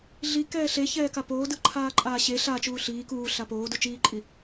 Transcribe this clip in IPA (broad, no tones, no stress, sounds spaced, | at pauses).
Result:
ɮ i k ɛː ɬ e ç ɛː k a p oː d ɯ ǃʰ aː ǃʼ aː ɕ e ɬ a t͡ʃ uː ɬ iː k uː ɬ a p oː d u t͡ʃ iː ǃʼ i